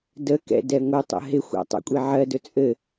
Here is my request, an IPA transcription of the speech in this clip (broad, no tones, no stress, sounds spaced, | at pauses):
d ə k ɛ̰ d ɛ ŋʷ ɘ tˤ ə̰ ɦ ɪ xʷ a̰ tˤ a̰ kʷʼ i ʕ ɜ d ɵ t͡sʼ ɘ